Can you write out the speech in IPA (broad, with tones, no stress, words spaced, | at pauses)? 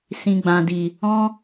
sĩ˨ɡ͡bã˨di˨ | ɔ̃˦